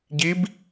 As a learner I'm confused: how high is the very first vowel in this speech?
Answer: high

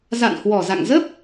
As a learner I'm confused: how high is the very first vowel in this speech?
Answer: low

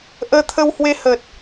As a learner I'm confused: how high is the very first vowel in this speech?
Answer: mid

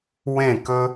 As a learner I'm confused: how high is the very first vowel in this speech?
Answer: mid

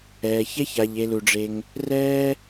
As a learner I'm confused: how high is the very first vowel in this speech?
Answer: mid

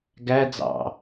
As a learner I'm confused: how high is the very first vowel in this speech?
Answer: low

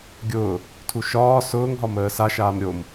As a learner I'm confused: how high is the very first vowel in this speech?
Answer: high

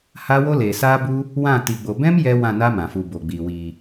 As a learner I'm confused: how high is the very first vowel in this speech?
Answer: low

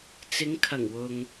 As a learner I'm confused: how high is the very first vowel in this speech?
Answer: high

